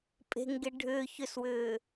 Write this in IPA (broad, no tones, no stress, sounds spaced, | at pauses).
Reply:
pʼ e̤ ŋ ɡ e ɖʱ ʏː ç ʏ s w ʏː